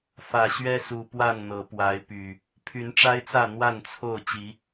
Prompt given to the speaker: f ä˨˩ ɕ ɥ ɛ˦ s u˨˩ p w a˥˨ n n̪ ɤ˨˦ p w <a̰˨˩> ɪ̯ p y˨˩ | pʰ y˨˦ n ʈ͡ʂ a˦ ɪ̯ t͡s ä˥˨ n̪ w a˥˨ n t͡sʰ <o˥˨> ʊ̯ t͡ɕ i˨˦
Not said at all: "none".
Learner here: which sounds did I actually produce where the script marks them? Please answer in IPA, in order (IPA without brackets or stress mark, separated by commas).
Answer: a˨˦, o˥˨